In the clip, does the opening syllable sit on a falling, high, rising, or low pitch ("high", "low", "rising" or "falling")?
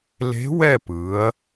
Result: rising